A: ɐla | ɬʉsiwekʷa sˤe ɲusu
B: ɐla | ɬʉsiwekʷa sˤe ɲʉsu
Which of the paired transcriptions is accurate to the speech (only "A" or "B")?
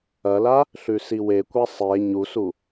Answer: A